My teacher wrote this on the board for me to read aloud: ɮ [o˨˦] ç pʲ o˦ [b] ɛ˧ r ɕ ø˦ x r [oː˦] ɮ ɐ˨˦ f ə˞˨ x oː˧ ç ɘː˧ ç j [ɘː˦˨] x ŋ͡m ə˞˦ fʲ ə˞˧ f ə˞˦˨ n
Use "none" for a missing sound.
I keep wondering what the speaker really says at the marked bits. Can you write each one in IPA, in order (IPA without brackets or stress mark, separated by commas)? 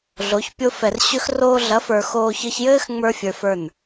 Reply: o˨˦, f, oː˧, ɘː˦